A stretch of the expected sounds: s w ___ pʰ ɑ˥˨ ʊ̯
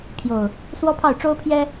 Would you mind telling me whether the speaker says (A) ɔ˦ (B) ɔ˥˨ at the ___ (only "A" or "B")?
A